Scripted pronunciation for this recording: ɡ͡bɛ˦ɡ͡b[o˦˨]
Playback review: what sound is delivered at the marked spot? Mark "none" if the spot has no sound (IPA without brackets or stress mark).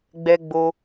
o˦